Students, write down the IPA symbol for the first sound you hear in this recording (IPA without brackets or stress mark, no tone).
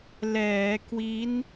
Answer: l